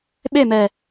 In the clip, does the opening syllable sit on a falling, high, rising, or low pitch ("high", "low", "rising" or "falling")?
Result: falling